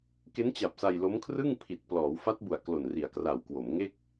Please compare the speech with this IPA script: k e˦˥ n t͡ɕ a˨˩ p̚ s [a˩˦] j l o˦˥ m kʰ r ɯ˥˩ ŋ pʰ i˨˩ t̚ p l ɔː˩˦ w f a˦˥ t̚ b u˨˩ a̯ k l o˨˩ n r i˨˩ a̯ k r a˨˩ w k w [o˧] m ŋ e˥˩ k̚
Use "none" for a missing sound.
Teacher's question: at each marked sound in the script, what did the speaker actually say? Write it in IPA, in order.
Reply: a˧, o˩˦

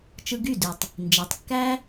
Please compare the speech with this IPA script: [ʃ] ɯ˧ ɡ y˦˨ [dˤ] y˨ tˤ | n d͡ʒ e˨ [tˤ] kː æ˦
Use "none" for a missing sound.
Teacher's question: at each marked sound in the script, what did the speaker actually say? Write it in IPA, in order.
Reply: t͡ʃ, d, tˤ

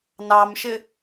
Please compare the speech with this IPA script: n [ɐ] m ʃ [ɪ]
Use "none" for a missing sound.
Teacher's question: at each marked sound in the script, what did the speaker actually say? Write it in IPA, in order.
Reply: ɑ, ɪ

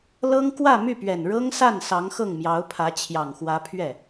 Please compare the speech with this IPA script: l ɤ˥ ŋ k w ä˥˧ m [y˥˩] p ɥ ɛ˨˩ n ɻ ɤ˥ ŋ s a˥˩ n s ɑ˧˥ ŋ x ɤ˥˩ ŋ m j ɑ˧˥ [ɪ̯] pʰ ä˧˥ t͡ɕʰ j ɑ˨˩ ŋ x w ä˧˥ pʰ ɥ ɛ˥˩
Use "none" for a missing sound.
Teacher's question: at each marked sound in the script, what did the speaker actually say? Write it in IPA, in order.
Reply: y˥˩, ʊ̯

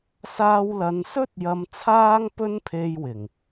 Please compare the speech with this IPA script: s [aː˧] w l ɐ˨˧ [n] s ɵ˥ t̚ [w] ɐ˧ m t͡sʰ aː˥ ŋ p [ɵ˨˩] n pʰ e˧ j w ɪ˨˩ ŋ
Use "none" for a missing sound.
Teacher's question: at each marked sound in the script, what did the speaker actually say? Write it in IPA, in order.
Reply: aː˧, n, j, ɵ˥

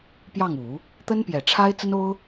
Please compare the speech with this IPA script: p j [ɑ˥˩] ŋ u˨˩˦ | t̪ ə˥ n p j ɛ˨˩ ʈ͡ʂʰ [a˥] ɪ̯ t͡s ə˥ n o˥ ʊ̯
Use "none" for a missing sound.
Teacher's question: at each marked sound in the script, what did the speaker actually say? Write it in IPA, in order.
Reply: ɑ˥˩, a˥

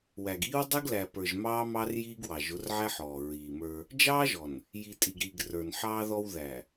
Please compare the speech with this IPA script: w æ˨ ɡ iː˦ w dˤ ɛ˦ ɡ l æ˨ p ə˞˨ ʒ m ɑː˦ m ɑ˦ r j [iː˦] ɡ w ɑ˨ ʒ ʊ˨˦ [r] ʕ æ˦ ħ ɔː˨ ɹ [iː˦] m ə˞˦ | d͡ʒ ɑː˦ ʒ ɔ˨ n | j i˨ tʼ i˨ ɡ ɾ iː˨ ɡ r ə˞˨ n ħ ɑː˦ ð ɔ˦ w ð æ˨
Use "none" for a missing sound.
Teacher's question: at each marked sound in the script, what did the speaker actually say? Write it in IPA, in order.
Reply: iː˦, r, iː˨

